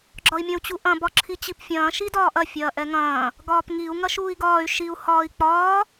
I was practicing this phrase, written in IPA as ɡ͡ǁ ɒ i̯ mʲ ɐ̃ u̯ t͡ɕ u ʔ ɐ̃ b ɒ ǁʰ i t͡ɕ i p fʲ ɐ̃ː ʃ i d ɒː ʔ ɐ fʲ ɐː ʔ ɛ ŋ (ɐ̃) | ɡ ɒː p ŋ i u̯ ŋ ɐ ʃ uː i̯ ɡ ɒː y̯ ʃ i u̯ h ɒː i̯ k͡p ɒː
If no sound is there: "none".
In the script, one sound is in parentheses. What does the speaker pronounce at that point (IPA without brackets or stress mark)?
ɐ̃ː